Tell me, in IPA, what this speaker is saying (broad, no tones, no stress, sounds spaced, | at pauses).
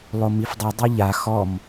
lˠ o m i f dˤ u dˤ i ʎ a x ɔ m